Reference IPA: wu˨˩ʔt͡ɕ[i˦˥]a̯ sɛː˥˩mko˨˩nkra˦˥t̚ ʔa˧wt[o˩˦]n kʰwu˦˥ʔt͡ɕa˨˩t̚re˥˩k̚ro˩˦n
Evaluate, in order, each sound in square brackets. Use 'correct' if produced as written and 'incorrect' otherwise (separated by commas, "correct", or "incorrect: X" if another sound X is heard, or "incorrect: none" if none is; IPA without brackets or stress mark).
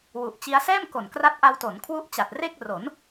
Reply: correct, correct